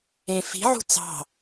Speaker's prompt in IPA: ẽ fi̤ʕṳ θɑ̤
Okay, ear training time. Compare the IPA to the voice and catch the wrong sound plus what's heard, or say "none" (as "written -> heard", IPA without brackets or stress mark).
θ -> t͡s